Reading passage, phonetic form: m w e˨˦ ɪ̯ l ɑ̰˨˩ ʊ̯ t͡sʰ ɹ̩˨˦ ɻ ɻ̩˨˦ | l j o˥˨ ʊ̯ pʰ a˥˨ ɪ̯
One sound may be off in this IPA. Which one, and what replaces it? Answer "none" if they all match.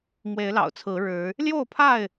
none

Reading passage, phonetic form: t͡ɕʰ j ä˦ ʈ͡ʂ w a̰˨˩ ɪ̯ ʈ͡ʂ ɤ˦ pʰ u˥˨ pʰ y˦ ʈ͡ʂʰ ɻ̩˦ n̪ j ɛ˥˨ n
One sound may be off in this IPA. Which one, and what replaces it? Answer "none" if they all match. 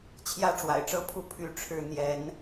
ɛ˥˨ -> ɛ˨˦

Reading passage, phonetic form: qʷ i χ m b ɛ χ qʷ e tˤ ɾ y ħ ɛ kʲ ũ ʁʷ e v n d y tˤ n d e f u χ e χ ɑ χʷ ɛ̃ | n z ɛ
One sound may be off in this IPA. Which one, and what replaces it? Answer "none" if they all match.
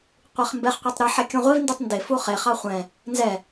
none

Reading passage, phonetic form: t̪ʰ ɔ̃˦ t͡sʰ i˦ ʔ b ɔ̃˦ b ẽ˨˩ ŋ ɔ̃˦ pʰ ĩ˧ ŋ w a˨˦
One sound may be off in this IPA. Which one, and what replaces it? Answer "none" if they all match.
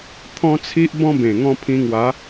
none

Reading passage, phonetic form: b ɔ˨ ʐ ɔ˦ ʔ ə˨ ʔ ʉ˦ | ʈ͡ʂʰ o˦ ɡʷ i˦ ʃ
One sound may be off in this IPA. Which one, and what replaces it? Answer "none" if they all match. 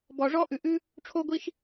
ə˨ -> ʉ˨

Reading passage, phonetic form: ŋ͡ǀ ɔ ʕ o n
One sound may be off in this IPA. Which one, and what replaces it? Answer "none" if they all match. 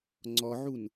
o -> u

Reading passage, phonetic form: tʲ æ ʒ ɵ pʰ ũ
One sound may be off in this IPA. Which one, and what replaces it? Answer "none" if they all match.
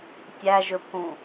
none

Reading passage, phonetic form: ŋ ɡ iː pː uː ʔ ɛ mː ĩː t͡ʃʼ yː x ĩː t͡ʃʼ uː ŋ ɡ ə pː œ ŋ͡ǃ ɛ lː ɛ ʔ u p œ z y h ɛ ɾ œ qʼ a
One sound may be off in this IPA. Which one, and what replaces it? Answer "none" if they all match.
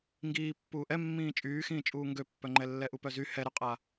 ə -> ø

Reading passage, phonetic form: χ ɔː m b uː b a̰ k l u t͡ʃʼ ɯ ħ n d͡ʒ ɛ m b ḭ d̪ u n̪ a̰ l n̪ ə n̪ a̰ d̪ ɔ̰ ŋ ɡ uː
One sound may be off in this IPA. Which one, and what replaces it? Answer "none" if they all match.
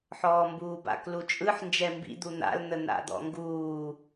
χ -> ħ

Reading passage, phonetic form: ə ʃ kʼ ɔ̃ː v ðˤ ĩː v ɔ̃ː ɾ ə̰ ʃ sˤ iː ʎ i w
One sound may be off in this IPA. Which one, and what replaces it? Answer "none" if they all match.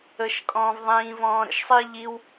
none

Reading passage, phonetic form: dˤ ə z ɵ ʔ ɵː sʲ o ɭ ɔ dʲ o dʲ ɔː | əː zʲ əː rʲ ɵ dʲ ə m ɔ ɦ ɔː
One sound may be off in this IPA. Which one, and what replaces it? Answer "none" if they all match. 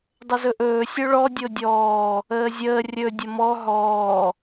none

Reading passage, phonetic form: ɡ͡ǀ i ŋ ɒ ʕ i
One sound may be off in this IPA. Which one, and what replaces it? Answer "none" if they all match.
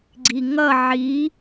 ɒ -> ʌ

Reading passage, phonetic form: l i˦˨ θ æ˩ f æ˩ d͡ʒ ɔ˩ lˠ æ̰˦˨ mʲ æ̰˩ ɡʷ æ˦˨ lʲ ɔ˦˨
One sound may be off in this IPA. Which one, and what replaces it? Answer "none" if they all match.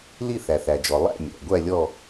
f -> θ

